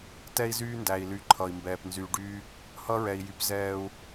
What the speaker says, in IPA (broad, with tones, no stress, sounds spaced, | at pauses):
t ɛ˦ i̯ z yː˦ n d æ˨ i̯ l y˨ ǃʰ ʌː˨ i̯ m b ɛː˨ p n z yː˨ ɖ yː˦ | h ʌ˦ ɹ ɛ˨ i̯ j y˨˦ p z ɛː˦ u̯